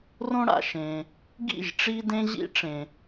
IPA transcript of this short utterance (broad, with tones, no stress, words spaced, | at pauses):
rõ˥ɽa̰˨ʃẽ˨ | ɡḭ˥˨ʒ ʈ͡ʂi˥dẽ˥ʑḭ˥ ʈ͡ʂẽ˨